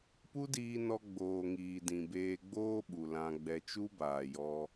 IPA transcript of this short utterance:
pu˦diː˧nɔ˧ ɡ͡boː˨ŋiː˨ dĩ˨beː˧ɡ͡boː˦ɓu˨ lã˧ɡ͡bɛ˧ t͡ʃu˦baː˨jɔ˧

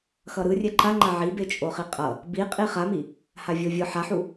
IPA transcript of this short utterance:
xʌɾɯrʲɛ ǃaŋ͡ǃa ʕibet͡ʃʼoχi qʼʌ | biqʼi χami | havʲovʲɯ ħaħu

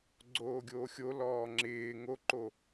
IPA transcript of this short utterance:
ɡ͡ǀoːɡʲoːxʲo lɔːŋ͡ǁɪː ŋoǃo

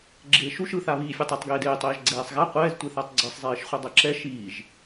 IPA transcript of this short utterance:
ɡ͡ǁeːʃuʃ ɯθa βiːfʲɛtˤatˤɡeːd eːtˤeːʒ ɡ͡ǀɛːsˤɣa qʷɛːztʷeθatˤ ɡ͡ǀɯsˤzˤeːʃχʷʌ dˤɛǁɛ ʃiːʒ

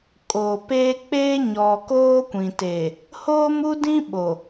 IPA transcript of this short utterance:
kʼoː˨peː˦ k͡peː˦ɲɔ˨ koː˦kʷĩ˨te˨ | hoː˦mu˦dĩ˦ ɓo˨

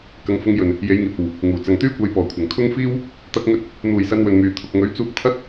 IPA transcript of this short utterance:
kɐ˨˧ŋ fʊ˧ŋjɵ˨n | je˨˧jŋiː˨p̚o˨w | ŋuː˨˩t͡sɐ˨ŋt̪yː˥ kʷɐ˨˧jpɔː˨˩kʷʰɐ˨˩ŋ kʰʊ˥ŋfiː˥w | t̪ɐ˧k̚ŋɵ˧t̚ | n̪uː˨jsɐ˧nwɵ˨nmyː˨ t̪ʰʊ˨k̚ŋɵ˨˥ɥt͡suː˧k̚ t̪ʰɐ˥t̚

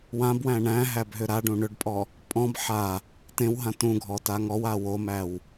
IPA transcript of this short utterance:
wãbwæ̃ ɳæ̃ɦæbɦʏ ɾaɖũ ɳʏɖpʼɔ | pʼɔ̃b ħa | tẽwɦã tũɡʱɔta ŋɔwa womæw

